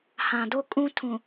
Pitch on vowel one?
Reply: low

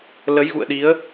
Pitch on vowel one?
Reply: rising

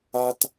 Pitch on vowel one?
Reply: high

